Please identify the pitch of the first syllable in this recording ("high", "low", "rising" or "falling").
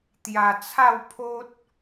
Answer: low